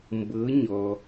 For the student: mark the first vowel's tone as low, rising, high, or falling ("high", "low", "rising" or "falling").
rising